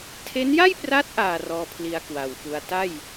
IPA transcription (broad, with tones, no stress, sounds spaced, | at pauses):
tʰ e˦˥ n j a˥˩ j p r a˦˥ t̚ ʔ aː˨˩ r ɔː˧ pʰ l i˧ a̯ k w a˨˩ w f u˧ a̯ t a˥˩ j